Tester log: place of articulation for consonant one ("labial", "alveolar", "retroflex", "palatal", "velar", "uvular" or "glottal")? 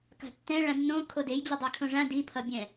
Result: velar